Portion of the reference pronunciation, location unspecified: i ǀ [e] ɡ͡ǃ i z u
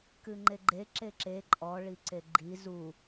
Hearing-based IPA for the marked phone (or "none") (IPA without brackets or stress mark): e